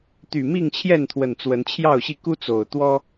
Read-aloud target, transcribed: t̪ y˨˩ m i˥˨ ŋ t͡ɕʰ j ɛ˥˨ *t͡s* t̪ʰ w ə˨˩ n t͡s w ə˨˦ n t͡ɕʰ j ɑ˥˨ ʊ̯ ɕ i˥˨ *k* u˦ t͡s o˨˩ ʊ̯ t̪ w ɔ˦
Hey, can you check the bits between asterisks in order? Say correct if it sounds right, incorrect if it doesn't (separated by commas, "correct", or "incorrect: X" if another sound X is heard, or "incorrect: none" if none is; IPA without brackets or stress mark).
incorrect: n, correct